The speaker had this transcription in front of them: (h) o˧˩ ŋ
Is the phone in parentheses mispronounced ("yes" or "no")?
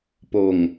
yes